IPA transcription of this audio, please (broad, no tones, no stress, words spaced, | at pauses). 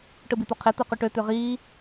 ʈɯbit̪oqʰe t̪ɯqyʈø t̪øʁiː